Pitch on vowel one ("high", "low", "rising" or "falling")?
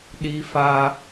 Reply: high